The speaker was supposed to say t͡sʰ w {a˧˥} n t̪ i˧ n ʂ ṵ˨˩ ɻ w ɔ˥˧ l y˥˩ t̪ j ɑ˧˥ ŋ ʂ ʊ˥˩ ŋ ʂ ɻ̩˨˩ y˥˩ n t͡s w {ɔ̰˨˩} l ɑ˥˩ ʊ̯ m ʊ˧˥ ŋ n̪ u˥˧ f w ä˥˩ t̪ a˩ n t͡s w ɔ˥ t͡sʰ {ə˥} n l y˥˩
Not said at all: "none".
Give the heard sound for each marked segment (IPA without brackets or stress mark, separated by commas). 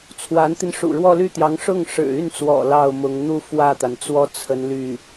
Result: a˧˥, ɔ̰˨˩, ə˧˥